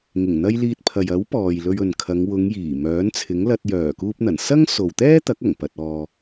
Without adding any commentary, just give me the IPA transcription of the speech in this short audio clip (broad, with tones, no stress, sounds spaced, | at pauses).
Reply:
ŋ ɪ˨˩ ŋ n̪ ɐ˧ j l iː˧ t̚ pʰ ɐ˨ j ɐ˨˥ w p ɔː˨ j l ɵ˧ ɥ ɵ˨ n kʰ ɐ˨˧ ŋ w ʊ˨˧ ŋ j iː˨˩ m œː˨˥ n t͡sʰ ɪ˨˥ ŋ l ɐ˧ t̚ j œː˨˩ k uː˧ p̚ n̪ ɐ˨˩ n s ɐ˥ ŋ s o˨ w t̪ ɛː˥ t̪ ɐ˨˥ k̚ ɐ˨˩ ŋ p ɐ˨ t̚ ɔː˨